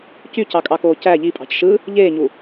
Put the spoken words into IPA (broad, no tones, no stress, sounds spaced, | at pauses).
c y c ɑ kʼ ɑ k oː c æ ʎ i pʼ ɑ̤ c ʃ ɯ | ʎ eː ɲ u